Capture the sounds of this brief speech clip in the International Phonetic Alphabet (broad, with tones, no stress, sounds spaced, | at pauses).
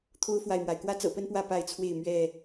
t̪ʰ o˦ ʊ̯ f w a˨ ɪ̯ m w a˩ ɪ̯ k w ä˦ t͡s ɤ̰˨˩ p ə˦ n p w ä˥˨ p a˥˨ ɪ̯ t͡sʰ w e˥˨ ɪ̯ m ɥ ɛ˥˨